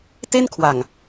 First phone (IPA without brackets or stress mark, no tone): t